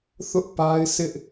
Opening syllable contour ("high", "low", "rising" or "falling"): high